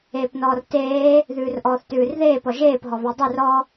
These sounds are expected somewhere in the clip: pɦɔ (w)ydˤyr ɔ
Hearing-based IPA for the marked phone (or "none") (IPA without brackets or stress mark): β